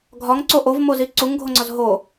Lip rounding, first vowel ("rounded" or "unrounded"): rounded